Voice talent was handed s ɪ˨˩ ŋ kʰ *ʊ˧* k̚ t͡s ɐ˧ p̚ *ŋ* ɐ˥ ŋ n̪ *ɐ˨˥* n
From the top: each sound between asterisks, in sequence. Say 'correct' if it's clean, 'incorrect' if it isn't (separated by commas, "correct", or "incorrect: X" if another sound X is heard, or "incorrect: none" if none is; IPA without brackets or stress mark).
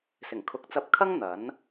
incorrect: ʊ˨˥, incorrect: kʰ, correct